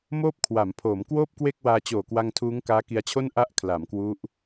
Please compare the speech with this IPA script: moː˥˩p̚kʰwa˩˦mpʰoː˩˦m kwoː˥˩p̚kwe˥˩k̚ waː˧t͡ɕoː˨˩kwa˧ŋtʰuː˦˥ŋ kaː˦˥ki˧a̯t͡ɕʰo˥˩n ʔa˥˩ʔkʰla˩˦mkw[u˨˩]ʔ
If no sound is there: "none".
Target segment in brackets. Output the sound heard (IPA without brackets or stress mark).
u˦˥